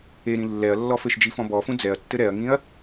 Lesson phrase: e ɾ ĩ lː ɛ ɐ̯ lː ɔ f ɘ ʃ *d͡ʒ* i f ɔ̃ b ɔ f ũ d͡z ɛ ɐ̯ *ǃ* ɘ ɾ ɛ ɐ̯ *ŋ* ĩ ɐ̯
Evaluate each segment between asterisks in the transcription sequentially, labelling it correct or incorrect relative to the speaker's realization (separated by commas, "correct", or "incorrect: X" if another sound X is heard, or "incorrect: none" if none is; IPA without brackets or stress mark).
correct, incorrect: tː, correct